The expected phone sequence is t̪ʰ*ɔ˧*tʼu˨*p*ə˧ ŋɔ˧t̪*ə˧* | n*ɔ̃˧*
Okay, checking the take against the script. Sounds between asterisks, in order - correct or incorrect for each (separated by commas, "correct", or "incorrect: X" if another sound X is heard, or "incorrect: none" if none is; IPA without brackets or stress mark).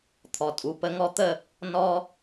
incorrect: ɔ˨, correct, incorrect: ə˦˨, incorrect: ɔ˧